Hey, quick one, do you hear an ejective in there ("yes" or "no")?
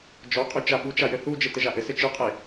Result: yes